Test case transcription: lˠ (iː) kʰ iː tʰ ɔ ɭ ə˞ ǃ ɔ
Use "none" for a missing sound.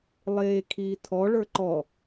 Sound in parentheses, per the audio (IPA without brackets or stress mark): eː